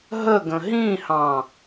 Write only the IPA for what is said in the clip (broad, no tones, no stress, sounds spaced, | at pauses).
ɦ ə ɡ ə̃ ɦ ĩ h ɑ̃